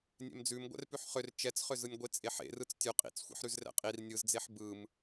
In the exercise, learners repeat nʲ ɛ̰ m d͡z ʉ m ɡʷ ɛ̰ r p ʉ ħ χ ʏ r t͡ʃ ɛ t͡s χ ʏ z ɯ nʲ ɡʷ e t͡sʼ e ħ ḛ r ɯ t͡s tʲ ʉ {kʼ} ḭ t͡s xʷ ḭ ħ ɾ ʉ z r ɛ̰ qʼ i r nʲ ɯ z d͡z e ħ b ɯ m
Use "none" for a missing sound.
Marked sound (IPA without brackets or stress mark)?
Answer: qʼ